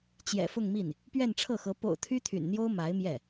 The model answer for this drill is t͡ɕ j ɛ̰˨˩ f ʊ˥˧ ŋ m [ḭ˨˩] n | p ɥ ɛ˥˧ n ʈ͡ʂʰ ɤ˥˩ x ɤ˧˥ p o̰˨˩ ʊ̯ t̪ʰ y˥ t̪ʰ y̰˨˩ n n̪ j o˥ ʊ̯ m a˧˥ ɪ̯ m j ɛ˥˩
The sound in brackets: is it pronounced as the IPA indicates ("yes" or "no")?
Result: no